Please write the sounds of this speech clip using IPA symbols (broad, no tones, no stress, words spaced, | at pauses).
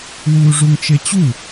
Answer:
wuːʐuŋt͡ʃet͡ɕu